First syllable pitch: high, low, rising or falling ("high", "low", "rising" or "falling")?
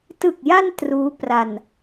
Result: low